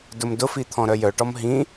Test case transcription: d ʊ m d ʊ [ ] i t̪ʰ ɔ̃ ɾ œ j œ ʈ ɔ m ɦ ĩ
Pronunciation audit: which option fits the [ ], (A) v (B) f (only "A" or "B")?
B